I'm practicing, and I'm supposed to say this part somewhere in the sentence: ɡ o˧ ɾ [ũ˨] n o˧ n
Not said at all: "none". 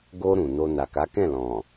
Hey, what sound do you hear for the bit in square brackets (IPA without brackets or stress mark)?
ũ˨